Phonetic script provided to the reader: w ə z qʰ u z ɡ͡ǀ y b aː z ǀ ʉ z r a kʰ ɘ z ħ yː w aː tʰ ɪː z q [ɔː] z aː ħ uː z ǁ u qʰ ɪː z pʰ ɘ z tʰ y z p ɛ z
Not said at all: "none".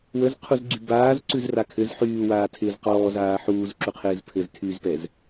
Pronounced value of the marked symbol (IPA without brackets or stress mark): ɔː